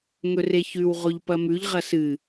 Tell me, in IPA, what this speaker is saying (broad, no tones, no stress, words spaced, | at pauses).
ŋɵreçʉw ʁoʎpɐmʉʎ ʁɐsɨ